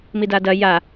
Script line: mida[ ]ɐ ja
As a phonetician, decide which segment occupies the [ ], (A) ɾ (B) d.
B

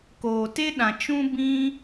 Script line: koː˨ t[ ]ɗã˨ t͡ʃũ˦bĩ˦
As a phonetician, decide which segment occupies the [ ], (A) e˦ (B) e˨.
A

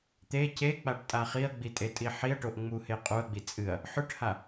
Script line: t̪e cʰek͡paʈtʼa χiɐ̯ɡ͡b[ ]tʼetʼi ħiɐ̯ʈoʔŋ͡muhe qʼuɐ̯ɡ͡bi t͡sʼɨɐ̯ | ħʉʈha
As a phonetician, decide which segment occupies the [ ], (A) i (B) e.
A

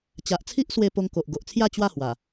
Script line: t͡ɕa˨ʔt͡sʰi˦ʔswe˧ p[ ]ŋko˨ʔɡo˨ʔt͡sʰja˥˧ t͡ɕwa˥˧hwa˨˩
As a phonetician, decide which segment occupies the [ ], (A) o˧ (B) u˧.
A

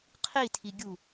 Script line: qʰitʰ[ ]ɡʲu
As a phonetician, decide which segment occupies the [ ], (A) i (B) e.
A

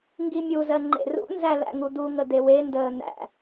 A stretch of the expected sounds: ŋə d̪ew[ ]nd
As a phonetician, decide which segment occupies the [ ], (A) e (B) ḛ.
A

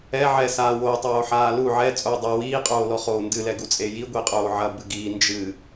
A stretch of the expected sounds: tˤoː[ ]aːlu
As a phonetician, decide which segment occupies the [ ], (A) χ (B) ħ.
B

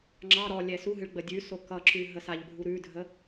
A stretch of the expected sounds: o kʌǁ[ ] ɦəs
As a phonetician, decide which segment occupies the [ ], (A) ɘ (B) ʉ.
B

